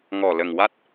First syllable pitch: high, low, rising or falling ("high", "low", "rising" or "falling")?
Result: low